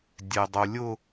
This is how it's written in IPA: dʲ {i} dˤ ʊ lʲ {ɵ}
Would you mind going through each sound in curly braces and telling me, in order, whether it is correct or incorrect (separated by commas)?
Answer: incorrect, incorrect